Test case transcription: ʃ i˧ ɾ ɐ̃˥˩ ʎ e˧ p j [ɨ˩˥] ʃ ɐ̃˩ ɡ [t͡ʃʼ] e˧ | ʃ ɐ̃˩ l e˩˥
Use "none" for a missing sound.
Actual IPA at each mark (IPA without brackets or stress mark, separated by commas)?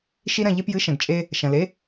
ɨ˩˥, t͡ʃʼ